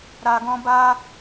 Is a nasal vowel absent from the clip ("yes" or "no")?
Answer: no